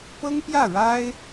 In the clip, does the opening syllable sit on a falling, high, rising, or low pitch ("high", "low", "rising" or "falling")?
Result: high